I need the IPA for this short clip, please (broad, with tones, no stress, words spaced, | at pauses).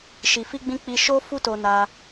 ʃi˨fi˧ɡ͡bĩ˧ k͡pi˧ ʃo˧fu˧ to˧na˧